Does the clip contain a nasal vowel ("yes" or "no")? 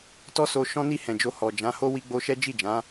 yes